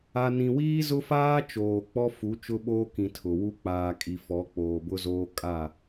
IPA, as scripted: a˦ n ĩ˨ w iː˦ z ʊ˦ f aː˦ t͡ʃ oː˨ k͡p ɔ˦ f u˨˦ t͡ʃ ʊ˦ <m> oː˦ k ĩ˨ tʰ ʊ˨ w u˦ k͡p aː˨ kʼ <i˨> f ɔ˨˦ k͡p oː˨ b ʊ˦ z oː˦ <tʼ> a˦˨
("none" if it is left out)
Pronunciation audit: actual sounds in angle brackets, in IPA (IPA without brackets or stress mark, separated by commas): ɓ, i˨, kʼ